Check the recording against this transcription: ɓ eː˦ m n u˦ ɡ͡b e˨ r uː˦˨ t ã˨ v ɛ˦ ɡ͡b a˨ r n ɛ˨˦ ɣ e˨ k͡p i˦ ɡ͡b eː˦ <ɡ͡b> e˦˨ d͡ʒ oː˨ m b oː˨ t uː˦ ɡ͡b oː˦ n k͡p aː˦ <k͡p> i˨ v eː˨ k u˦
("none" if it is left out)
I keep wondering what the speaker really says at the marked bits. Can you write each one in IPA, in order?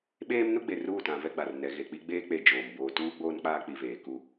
k͡p, k͡p

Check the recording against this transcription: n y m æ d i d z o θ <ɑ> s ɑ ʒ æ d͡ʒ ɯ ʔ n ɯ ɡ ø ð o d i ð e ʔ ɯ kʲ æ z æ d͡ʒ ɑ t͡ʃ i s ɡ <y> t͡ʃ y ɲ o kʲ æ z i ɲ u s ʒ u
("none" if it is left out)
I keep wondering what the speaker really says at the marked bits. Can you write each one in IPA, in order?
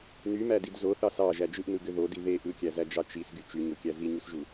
ɑ, y

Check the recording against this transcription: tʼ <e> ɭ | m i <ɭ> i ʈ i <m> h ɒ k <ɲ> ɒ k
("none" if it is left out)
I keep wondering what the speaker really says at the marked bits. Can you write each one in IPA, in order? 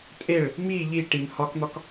e, ʎ, m, n̪

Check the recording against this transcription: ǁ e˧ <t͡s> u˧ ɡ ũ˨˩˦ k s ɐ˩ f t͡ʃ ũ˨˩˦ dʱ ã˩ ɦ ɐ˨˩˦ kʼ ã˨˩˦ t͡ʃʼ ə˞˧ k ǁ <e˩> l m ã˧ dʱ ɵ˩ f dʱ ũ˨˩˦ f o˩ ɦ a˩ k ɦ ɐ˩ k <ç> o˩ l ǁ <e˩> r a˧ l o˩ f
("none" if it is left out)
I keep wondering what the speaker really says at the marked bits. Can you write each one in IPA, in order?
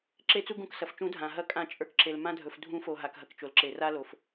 t͡s, e˩, t͡ʃ, e˩

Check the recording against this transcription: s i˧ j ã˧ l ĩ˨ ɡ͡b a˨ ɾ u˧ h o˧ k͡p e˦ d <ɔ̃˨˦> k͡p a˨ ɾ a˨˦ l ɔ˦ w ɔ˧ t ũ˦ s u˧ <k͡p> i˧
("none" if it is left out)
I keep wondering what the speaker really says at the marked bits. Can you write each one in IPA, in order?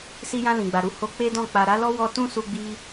ɔ̃˦˨, ɡ͡b

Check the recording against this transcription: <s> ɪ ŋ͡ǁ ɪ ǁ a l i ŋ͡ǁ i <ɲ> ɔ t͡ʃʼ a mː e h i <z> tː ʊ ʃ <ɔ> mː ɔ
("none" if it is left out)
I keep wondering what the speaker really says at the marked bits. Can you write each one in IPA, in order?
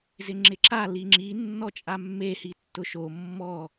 z, nː, none, o

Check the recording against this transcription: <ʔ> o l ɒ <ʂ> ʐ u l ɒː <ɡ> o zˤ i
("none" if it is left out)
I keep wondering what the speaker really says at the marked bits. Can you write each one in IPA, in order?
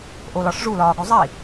ʔ, ʂ, ɡ

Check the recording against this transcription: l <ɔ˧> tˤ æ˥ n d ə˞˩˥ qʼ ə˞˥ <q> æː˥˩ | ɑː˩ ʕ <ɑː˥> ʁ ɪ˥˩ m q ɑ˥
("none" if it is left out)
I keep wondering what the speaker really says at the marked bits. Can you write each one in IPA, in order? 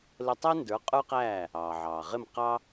ə˧, q, ɑː˩

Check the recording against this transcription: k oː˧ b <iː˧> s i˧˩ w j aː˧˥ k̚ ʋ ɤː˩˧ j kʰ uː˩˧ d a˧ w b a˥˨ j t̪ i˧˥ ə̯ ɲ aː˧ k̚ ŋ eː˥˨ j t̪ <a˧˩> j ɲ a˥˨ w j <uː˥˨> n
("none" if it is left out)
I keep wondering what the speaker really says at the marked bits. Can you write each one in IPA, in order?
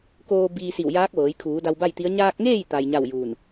iː˧, a˧, uː˧˩

